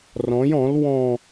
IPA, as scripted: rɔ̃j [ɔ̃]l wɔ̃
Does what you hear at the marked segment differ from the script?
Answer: no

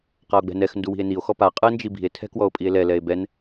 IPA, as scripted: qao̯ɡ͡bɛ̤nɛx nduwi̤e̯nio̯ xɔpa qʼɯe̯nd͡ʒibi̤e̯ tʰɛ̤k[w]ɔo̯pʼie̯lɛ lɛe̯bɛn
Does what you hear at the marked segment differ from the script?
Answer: no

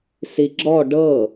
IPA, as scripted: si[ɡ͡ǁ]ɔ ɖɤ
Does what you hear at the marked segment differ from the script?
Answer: no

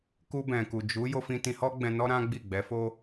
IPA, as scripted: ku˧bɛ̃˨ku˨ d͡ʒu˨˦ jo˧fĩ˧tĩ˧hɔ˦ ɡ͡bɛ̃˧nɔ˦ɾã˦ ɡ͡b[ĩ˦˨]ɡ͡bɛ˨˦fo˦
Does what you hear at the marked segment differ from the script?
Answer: yes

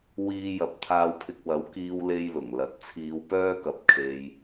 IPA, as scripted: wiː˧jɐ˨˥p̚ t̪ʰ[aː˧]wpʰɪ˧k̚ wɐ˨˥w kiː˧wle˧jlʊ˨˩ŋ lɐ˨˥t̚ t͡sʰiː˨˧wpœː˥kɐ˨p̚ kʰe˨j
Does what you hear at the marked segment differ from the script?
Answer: no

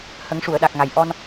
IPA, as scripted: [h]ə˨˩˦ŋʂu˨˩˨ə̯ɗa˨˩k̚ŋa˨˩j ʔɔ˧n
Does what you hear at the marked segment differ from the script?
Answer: no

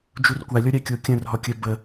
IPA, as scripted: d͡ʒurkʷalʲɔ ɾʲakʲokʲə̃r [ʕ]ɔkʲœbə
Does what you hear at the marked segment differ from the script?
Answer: yes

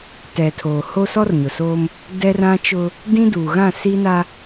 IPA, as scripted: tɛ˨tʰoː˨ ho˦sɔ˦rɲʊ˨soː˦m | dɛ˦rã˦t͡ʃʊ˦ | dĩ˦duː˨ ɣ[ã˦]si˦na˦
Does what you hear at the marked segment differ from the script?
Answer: yes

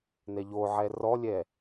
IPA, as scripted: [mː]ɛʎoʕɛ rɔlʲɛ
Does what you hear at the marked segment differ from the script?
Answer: yes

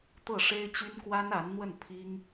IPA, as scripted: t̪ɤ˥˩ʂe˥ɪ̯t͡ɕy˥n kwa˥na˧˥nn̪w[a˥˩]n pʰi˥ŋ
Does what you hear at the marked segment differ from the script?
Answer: yes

